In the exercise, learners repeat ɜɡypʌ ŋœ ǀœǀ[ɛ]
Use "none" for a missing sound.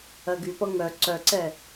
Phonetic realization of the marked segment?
ɛ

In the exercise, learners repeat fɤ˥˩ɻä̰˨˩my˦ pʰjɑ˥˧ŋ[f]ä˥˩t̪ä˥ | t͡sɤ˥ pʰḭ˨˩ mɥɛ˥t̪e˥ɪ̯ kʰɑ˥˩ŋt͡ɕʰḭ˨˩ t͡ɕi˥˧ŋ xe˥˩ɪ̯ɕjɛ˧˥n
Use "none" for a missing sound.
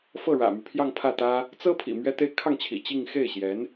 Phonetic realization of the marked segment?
pʰ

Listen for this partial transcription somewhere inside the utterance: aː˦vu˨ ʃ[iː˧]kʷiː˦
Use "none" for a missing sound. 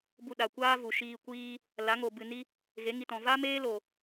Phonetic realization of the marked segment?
iː˧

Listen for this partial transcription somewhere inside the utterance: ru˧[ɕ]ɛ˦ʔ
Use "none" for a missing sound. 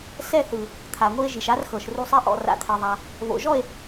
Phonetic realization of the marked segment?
sˤ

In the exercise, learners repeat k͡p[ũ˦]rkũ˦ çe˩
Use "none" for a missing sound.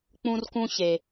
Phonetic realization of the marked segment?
ũ˦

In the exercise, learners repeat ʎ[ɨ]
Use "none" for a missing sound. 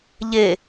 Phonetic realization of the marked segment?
e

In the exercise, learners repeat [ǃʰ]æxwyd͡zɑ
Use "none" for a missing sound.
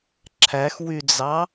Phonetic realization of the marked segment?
ǁʰ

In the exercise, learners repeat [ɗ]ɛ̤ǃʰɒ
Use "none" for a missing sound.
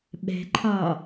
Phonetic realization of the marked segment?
ɓ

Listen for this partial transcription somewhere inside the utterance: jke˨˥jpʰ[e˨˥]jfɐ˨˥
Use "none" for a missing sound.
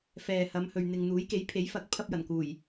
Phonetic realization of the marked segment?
e˨˥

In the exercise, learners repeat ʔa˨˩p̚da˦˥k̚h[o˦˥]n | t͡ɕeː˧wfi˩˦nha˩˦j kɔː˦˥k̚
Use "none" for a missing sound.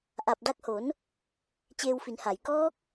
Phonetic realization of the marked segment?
o˩˦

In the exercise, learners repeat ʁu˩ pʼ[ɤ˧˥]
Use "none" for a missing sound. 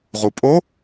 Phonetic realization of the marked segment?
o˧˥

